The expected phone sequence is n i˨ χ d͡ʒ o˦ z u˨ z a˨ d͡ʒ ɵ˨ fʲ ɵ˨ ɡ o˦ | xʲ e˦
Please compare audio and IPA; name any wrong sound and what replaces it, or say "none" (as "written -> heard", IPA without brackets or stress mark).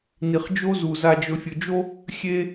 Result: ɡ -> d͡ʒ